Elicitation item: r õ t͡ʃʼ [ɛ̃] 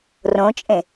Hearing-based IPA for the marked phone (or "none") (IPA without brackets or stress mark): ẽ